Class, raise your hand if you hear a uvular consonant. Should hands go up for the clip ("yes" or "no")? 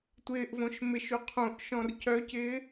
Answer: yes